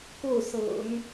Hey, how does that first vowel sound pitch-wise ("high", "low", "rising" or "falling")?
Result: falling